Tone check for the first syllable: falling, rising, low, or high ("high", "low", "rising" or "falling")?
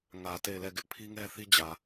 low